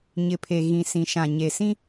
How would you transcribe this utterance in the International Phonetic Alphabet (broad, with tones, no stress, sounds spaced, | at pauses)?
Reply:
ɲ ɪ˨ pʰ e˨ ɣ ĩ˨ s ĩ˨ ʃ ã˨ ɲ e˨ s ĩ˦